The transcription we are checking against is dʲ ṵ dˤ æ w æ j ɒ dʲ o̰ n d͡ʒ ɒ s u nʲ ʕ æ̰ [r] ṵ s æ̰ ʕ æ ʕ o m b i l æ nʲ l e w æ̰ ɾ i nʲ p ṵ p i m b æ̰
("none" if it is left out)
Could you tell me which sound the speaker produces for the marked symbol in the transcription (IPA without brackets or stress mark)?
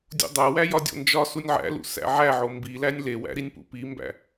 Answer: l